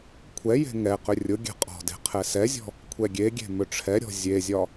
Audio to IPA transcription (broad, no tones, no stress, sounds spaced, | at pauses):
kʷʰ ɛ j e̤ ŋ ɛ q ʏ rʲ ʊ ɡʲ ɛ̤ qʼ ɔ̤ d e̤ qʰ ɛ s ɛ zʲ ɔ̤ | kʷʰ ɛ ɡʲ e ɡʲ e̤ m ʏ ʈ͡ʂʰ ɛ ɾʲ ɔ̤ zʲ e zʲ ɒ